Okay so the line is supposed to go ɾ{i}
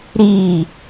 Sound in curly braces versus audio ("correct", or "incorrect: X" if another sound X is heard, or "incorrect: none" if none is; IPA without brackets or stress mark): correct